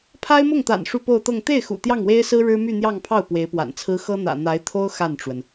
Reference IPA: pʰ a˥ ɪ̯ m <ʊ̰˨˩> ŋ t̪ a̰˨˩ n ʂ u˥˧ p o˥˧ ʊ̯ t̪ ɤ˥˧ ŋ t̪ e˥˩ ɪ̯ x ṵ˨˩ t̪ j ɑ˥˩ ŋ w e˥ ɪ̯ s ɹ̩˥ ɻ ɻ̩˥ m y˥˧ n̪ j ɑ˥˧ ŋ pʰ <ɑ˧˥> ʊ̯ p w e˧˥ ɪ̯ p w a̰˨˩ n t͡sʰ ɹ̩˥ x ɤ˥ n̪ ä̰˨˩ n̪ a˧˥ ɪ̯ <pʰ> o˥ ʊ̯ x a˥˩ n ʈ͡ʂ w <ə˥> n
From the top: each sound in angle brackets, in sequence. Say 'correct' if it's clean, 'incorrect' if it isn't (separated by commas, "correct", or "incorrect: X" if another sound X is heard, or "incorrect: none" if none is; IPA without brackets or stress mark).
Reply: incorrect: ʊ˥˩, incorrect: ɑ˥˩, incorrect: t̪ʰ, incorrect: ə˩